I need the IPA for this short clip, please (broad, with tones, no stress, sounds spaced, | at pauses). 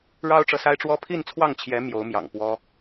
ɻ ɑ˥ ʊ̯ ʈ͡ʂ ɤ˨ s a˥ ɪ̯ ʈ͡ʂ w ɔ˥ pʰ i˥˧ n t͡sʰ w ɑ˥˩ ŋ t͡ɕʰ j ɛ˧˥ m j o˧˥ ʊ̯ m j ɑ̰˨˩ ŋ p w ɔ˥